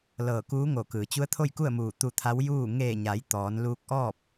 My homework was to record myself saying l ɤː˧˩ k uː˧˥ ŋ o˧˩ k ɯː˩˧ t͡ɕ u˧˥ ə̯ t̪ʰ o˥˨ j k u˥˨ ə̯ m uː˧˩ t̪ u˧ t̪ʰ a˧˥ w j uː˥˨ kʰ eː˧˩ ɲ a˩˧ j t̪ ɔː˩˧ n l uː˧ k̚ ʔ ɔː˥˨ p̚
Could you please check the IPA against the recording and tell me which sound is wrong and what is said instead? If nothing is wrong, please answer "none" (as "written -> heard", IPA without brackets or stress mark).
kʰ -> ŋ